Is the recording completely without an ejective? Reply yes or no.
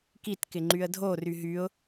yes